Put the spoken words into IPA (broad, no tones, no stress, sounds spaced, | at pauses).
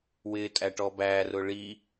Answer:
w ɪ tʼ æ ʈ ɔ b æ r ʊ ɭ i